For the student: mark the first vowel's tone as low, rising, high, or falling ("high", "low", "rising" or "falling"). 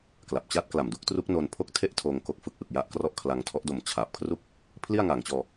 low